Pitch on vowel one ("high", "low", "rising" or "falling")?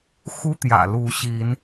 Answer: high